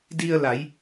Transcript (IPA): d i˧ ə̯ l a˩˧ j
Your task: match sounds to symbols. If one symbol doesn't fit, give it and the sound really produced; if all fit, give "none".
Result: none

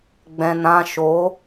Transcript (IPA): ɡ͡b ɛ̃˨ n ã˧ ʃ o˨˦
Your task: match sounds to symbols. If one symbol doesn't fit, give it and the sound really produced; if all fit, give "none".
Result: none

